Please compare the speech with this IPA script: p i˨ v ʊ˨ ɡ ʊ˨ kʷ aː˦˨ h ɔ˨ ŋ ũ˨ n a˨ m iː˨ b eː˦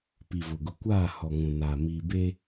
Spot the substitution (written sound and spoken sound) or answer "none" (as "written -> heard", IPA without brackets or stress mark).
none